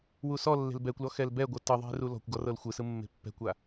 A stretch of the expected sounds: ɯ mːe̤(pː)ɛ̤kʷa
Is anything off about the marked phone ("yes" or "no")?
no